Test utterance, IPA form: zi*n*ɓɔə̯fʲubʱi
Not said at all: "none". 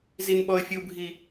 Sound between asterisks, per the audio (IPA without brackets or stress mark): n